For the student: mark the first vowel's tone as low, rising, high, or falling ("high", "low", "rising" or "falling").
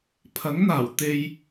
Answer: rising